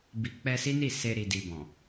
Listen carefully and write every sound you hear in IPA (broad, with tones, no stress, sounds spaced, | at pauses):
b i˨ k͡p ɛ˧ s i˦ n i˦˨ s e˧ ɾ i˨ d i˨ b ɔ̃˨